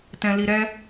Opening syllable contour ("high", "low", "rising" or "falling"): low